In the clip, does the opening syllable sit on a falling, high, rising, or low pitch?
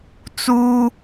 high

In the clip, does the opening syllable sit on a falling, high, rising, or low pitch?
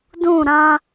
falling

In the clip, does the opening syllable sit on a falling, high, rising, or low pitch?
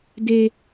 high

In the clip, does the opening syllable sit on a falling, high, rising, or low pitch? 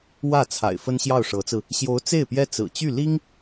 falling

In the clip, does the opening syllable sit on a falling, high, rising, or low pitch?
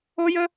high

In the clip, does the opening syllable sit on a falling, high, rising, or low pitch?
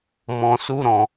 low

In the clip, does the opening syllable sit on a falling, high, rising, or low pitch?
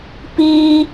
high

